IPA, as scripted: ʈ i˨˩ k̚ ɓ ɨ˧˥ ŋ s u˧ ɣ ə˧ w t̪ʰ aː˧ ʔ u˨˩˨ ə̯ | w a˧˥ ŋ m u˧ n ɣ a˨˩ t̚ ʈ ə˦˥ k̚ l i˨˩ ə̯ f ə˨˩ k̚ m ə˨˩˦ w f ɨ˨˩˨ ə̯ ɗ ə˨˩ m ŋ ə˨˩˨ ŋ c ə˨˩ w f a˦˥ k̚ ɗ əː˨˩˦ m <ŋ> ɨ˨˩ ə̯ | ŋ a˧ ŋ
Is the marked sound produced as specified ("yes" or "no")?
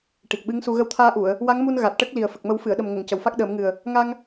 yes